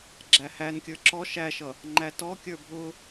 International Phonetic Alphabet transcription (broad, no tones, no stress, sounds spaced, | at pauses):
ɡ͡ǁ æ h æ n kʲ ə˞ ǁ ɔ ʃ æ ʃ ʌ | ŋ͡ǃ æ t ɔ kʲ ə˞ bʱ ʊ